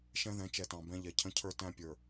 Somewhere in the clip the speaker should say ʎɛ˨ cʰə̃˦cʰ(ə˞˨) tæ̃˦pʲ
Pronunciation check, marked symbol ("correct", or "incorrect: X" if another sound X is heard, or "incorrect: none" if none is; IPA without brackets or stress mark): incorrect: ə˞˦